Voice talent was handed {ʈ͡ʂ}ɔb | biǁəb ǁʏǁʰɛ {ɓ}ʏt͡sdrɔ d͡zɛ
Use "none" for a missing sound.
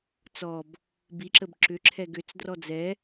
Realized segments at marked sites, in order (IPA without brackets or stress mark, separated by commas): t͡s, ɡ